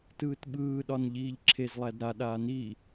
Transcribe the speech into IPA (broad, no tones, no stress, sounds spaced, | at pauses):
t ɯː t ɓ ɯː ɗ ɒ n ʎ iː ʎ ǁʰ e z lˠ æ d ɾ a ɗ aː n i